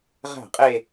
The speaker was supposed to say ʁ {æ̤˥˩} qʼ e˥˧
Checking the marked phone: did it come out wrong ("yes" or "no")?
no